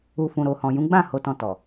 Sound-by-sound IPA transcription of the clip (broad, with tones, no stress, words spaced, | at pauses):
u˨fũ˨ɾo˨hɔ̃˨ jũ˨˦ɡ͡bã˦˨ ho˨˦tɔ̃˧tɔ˨